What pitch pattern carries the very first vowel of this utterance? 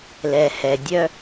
low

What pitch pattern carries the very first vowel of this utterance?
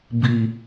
low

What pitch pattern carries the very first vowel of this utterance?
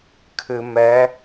low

